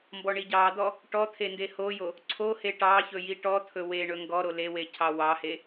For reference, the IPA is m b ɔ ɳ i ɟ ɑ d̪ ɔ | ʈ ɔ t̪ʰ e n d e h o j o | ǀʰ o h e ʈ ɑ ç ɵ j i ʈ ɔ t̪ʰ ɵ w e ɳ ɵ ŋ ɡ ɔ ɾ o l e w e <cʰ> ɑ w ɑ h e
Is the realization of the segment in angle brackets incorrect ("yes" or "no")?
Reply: no